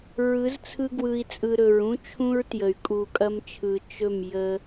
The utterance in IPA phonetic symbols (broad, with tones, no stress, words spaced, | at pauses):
ɹɯ˨˦z t͡sʰɯ˧ɡwɯ˨i̯t͡sʼɯ˨ ɾɵ˨ɹũ˦t͡ʃʰũ˦ɹtjə˨y̯ kʼu˨kʼɐ˧mt͡ʃʰɯ˨ t͡ʃɵ˦˨m jə˦